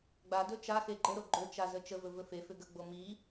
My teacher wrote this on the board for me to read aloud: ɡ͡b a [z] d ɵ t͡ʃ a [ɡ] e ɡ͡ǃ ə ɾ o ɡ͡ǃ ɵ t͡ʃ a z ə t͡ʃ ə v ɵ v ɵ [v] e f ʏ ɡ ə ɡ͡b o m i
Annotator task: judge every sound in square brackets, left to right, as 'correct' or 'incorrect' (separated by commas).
incorrect, incorrect, incorrect